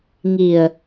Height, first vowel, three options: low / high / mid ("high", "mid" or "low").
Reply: high